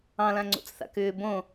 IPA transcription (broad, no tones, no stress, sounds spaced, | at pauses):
ɑ̃ l ã ŋ͡ǀ o̰ t͡s θ a̰ k ʏː b õ